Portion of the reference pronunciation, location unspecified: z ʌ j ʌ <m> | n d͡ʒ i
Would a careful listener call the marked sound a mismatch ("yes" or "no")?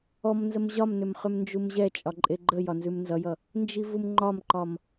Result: yes